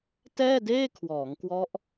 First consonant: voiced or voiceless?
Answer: voiceless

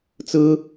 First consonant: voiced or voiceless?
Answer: voiceless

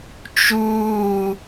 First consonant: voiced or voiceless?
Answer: voiceless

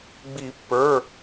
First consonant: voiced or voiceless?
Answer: voiced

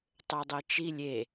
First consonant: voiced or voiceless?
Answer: voiceless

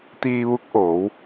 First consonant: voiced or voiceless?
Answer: voiceless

